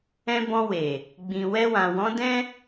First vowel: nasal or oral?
nasal